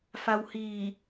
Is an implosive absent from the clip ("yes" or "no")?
yes